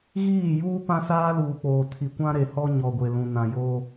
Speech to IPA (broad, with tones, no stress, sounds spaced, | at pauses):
ɣ iː˦˨ j uː˦ p ã˦ s aː˦ l uː˨ k͡p oː˨ tʰ i˨ kʷ ã˦ ɾ e˨ h ɔ˦ ɲ ɔ˨ ɡʷ e˨ l ũ˨ n ã˨ j oː˦